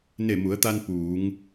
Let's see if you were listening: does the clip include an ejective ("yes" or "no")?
no